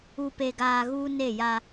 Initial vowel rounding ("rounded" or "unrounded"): rounded